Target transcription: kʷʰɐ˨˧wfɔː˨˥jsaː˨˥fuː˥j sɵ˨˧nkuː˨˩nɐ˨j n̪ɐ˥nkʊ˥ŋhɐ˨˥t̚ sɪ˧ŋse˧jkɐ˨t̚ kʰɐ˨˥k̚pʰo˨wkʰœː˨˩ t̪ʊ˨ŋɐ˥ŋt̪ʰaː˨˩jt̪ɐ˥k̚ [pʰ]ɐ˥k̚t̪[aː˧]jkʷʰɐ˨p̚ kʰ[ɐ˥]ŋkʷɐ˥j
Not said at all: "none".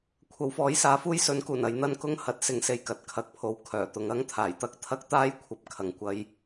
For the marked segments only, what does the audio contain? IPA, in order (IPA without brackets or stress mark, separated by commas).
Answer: t̪ʰ, aː˥, ɐ˨